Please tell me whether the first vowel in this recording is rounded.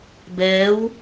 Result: no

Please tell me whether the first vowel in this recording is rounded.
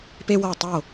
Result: no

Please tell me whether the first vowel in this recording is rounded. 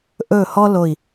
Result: yes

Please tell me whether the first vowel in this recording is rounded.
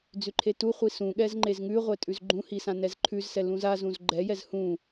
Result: yes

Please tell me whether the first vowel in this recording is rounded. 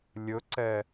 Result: yes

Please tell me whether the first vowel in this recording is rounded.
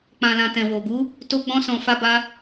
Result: no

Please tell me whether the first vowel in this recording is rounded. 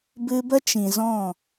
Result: no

